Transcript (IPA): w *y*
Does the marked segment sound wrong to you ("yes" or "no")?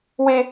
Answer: yes